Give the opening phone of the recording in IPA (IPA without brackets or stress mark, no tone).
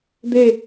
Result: d̪